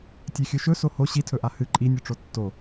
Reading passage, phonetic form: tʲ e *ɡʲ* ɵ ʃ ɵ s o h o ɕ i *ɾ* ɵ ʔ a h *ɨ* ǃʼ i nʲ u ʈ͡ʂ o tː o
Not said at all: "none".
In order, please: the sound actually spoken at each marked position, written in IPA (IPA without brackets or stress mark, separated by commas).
xʲ, tʰ, ɨ